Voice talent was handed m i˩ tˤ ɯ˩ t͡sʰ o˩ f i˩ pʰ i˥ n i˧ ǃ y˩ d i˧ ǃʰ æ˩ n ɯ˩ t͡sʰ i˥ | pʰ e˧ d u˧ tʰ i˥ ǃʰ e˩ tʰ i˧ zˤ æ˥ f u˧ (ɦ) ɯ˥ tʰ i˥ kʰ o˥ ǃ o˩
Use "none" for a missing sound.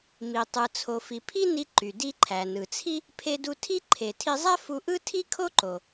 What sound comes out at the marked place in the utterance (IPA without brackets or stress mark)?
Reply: ʔ